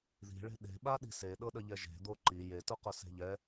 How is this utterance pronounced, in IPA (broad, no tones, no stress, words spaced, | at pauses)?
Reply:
ði̤ɭe̤ ɗe̤ɓaɗi̤ seɗɤɗəʎɛ ʒe̤d̪o ǃi jetʊqʊ se̤ʎɛ